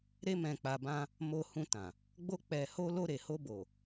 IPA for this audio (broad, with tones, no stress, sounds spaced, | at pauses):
ɾ e˧ m ɛ̃˨ k͡p a˨ b ã˧ | m o˧ h ũ˧ t ã˨ | ɡ͡b o˧ k͡p ɛ˨ h o˧ l o˧ ɾ e˨ h o˧ b o˨